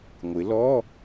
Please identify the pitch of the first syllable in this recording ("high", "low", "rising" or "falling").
rising